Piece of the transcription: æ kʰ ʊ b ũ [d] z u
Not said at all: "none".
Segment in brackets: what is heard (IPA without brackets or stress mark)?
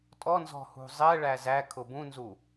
n